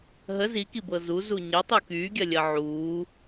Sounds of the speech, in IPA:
ɦ ə z i k i b ɤ z u z u ɲ ə tˤ u k yː ɡʲ ɜ lʲ ɜ ʕ uː

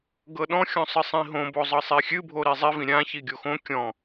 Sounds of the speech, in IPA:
ɡ ɤ ɗ ɔ̃ xʲ ɔ̃ sˤ ɨ sˤ ĩ ɦ õ b o zˤ ɤ sˤ i xʲ ɨ bʱ o ɾ i zˤ i v ĩ ɾʲ ã ç i ɡʲ o x õ kʲ ɔ̃

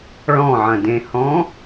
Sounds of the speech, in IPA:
ɭ ɔ̃ ʕ ɐ̃ d ẽ h ɔ̃

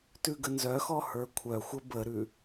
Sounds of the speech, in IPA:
t ʉ ɡ ə n z œ x ɔ h ə˞ kʷʰ œ xʷ ə b ə ɾ ʉ

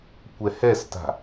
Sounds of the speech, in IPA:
kʷ ɛ h ɛ s t a̤

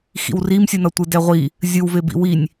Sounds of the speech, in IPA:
x ḭ w r i m sʲ ɯ n ʌ tʷ ɯ d ɛ ʁʷ i | zʲ ɯ w v e b ḭ w i nʲ

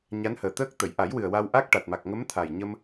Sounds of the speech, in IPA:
ɲ a˧˥ n h əː˨˩ t̪ əː˦˥ k̚ t̪ ə˨˩˨ j ʔ a˨˩˦ j w ɨ˨˩ ə̯ w a˧ w ʔ a˦˥ k̚ ʈ a˨˩ t̚ m a˨˩ k̚ ŋ ə˧˥ m t̪ʰ a˨˩ j ɲ ə˧ m

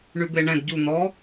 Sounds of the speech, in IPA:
ɳ y b e ɳ ɛ̃ d ɟ u n̪ ɔ

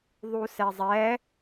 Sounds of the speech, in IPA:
ðˤ u s ɛ zˤ ɛ

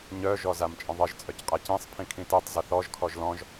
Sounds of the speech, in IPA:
ɲ œ ʒ ɔ z a m t͡ʃʼ ə̃ ðˤ ə ʒ t͡sʼ œ c qʼ a c ĩ sˤ pʰ ĩ kʰ ĩ t i tˤ z ə θ ɔ ʒ kʰ ɔ ʒ l ɔ̃ ʒ

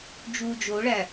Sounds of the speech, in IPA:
d͡ʒ uː d͡ʒ o ɭ æ

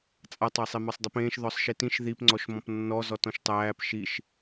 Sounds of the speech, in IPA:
t͡sʼ a tˤ a sˤ e m a sˤ dˤ i p ẽː ʃ ð ɔ sˤ ʃ i t ĩ ʃ ð i p ŋ͡ǀ ɔ ʃ m ɔ̃ p nː ɔ z ɔ t ɔ̃ ʃ tˤ æː p ʃ i ʃ

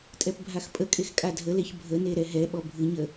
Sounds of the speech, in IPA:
tʼ ɛ p bʱ a x pʼ ə kʼ e x kʼ a dʱ ə l e ç bʱ ə n e ɾ ɛ ɦ ɛ ɓ ɔ bʱ ɨ ɲ ə

